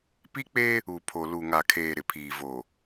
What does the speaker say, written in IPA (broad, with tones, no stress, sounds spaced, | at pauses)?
p i˦ k͡p e˦ | u˨ pʰ o˨ l u˨ ŋ a˨ kʰ eː˨ ɾ ɪ˨ pʰ iː˨ v o˨